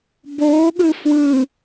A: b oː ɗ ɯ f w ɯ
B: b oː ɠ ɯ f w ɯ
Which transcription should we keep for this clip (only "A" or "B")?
B